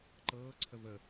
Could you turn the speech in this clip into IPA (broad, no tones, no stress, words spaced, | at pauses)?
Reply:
ǃɤːǀʰə və